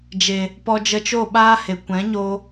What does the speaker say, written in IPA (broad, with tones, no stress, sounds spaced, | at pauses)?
d͡ʒ e˨ | p ɔ˧ d͡ʒ ə˧ t͡ʃ o˦˨ ɓ aː˦ h e˨ kʷ ɛ̃˨˦ ɲ o˧